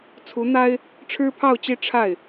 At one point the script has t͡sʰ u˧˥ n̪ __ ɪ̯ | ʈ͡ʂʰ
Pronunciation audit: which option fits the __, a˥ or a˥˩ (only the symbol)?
a˥